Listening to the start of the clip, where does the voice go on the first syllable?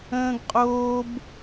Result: high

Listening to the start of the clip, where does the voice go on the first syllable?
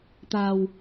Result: low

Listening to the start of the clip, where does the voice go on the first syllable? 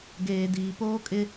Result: low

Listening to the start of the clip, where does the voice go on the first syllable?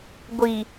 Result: low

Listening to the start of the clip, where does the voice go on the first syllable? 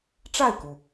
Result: falling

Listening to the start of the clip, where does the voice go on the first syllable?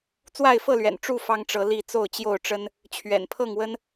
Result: falling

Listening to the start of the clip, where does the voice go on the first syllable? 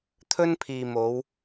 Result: high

